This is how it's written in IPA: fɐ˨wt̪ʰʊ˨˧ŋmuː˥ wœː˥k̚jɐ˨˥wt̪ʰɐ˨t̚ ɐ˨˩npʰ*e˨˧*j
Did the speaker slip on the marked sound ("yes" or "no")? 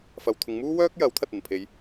no